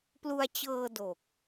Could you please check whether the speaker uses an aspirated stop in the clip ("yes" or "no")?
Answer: no